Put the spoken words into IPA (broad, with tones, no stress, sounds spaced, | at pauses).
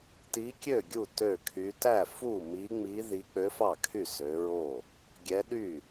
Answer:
t i˧˥ kʲ ø˥˩ ɡʲ u˥˩ t ø˥˩ kʰ y˧˥ t æ˥˩ f u˥˩ m i˧˥ ŋ͡m i˧˥ ð i˧˥ k͡p ø˧˥ f ɑ˥˩ kʰ y˥˩ s ø˧˥ ɹ o˥˩ | ɡʲ ɛ˧˥ ɗ y˥˩